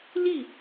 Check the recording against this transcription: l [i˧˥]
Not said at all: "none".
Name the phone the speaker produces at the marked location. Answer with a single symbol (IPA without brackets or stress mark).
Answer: i˥˩